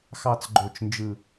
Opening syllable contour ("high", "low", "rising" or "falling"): falling